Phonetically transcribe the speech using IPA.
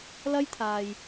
l ɐ˥ j t̪ʰ aː˨ j

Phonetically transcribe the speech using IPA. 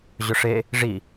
ʑ ʊ ʂ e | ʐ i

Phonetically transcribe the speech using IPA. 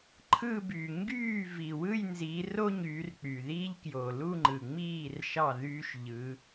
ǃʰ ɯ˥˧ b y˨˩ ŋ ɡ yː˥˩ v i˨˩ w ɯ˥˧ j n z i˨˦ r o˥ ɲ yː˨˦ r k͡p y˨˩ ð iː˥ ʎ k j o˨˩ l u˥˧ ŋ͡ǃ ɯ˨˩ ŋ͡m iː˥˩ r ʃ ɑ˥˩ ð yː˥ ʃ ʎ ɯ˨˦

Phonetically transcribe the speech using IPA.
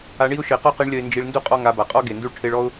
a˧ ɳ i˦ ʊ̯ ʃ e˨ q ɔ˦ q i˧ ɳ lʲ ɐ˧ ɪ̯ n d͡ʒ i˧ ɭ n d u˦ qʼ ɔ˦ ŋ a˧ b a˨ qʼ ɔ˦ ɡ e˨ n d u˦ ɭ ʈʰ e˧ ɭ ɔ˦ ʊ̯

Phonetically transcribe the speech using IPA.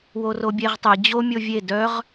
w o r o bʲ e ʁ tˤ e d͡ʑ o mʲ o vʲ e d œ ʁ

